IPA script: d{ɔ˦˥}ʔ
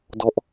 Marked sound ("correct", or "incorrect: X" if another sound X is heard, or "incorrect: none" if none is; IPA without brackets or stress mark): correct